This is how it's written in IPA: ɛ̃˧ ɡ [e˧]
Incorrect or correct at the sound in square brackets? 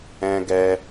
incorrect: ɛ˧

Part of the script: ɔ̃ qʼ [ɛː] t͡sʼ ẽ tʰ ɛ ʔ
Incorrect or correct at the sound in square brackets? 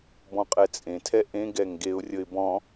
incorrect: ɛ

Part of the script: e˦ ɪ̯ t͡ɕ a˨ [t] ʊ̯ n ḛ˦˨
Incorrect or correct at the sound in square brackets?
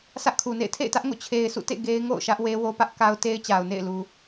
incorrect: none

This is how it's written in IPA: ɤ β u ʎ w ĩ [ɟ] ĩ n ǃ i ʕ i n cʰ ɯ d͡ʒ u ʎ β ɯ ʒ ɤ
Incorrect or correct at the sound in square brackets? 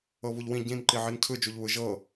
correct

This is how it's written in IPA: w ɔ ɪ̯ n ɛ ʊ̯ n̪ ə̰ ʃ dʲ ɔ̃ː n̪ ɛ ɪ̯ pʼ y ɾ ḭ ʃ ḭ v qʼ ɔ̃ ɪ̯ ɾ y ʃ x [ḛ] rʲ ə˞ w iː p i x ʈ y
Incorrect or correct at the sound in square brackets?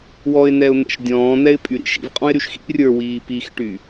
incorrect: ḭ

